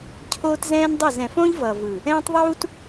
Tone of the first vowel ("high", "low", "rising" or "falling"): high